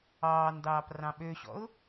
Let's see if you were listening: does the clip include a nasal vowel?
yes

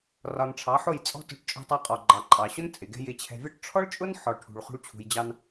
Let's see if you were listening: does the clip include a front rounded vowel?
no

